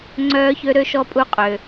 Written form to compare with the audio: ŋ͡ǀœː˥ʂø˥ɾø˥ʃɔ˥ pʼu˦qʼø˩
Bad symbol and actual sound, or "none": ʂ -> ç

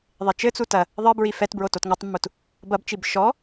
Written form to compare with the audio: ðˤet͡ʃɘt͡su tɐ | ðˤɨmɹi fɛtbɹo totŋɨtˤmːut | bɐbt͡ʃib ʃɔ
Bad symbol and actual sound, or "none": m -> b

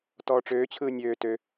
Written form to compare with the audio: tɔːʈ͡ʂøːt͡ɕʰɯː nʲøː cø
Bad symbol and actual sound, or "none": c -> t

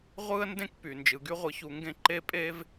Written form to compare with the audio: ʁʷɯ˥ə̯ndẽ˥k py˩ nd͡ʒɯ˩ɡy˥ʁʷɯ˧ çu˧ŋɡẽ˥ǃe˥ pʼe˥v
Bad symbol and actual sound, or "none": none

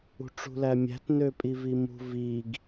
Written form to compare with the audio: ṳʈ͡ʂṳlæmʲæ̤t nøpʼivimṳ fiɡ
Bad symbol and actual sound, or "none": f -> v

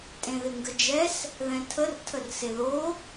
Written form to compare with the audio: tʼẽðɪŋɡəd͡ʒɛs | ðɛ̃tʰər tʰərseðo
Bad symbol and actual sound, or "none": none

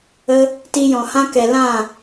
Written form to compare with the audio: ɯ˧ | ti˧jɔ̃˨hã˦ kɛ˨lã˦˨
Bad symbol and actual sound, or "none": ɯ˧ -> ə˧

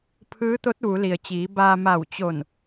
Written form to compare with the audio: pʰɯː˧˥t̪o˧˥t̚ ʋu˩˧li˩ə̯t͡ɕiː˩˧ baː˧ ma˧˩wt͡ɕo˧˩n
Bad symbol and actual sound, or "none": none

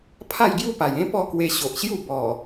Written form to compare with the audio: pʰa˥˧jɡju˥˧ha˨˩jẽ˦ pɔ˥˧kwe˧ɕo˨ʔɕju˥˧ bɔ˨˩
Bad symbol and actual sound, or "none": h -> p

